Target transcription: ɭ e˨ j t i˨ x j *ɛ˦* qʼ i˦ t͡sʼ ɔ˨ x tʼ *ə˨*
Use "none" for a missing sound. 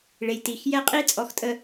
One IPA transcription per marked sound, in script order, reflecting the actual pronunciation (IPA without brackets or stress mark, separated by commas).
ɛ˦, ə˨